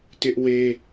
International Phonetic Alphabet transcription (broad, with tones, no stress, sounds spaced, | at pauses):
t ɪ˦ ʔ w e˦